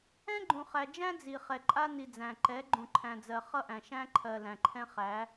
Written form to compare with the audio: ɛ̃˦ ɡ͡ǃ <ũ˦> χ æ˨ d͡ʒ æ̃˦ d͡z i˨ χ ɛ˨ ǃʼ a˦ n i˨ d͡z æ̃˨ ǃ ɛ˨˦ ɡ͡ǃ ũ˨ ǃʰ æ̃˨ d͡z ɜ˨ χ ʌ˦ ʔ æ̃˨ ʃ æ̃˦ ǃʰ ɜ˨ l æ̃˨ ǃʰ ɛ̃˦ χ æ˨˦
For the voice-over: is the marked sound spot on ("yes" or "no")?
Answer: no